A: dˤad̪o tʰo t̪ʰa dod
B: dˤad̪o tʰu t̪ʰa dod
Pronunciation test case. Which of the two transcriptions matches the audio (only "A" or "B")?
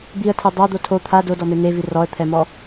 A